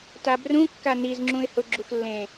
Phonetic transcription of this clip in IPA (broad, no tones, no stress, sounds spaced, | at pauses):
t a b r ũ kː a n i z ŋ͡ǁ ũ ɪ̯ h ʊ ɡ͡ǁ u x lː ẽ